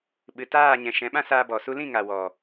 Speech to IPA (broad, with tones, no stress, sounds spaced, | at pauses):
ɓ ɨ˨ t aː˦˨ ɲ ɛ̃˨ ʃ ɛ̃˨˦ ɓ ã˦ s aː˧ b ɔ˨ s u˧ l ĩ˦˨ ŋ a˨ w ɔ˨